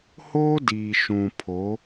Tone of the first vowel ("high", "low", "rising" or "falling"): high